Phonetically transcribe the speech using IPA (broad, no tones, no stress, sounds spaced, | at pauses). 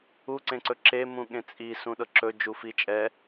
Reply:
u ǀ ẽ ǀ ɵ ǁ e m ũ ɠ ẽ t͡sʼ i s ũ ɗ ɤ ǁ ɵ d͡ʒ u f i t͡ʃʼ ɛ